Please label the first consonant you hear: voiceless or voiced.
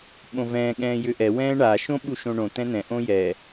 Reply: voiced